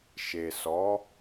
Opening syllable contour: low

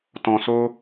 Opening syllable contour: low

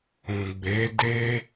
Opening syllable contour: low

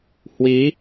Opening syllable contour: rising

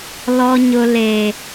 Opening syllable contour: high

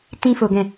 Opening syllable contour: high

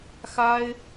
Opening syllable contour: high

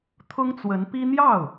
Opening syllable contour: high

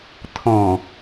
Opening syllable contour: low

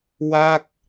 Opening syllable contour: falling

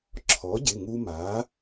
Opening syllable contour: rising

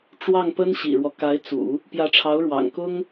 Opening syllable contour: falling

